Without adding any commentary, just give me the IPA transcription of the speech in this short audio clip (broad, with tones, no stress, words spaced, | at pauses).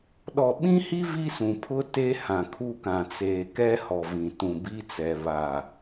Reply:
ɗɔ˨ɓĩ˦hi˦ vi˦sũ˨pʰʊ˦ te˦ hã˨kʰu˦kã˨ t͡seː˨ kɛ˦hɔ˨vĩ˨ tũ˨bi˦t͡sɛ˨ βa˨